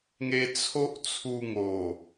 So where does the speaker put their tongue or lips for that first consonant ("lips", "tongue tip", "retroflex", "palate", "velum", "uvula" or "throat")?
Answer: velum